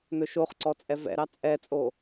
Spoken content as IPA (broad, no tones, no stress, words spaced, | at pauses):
nɵʃoχǀɔ t͡sʼɛvɛ̰ɾɑ t͡sʼɛt͡sʼo